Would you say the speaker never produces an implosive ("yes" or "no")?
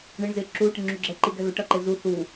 yes